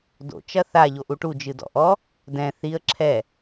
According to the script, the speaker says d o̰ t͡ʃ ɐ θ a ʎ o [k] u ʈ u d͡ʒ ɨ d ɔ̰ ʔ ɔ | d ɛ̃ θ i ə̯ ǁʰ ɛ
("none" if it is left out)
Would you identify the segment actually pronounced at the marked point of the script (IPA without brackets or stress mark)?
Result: ʔ